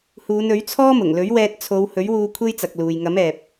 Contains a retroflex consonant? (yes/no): no